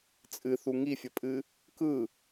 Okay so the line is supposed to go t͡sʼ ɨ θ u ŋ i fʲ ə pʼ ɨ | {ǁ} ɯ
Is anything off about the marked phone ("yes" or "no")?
yes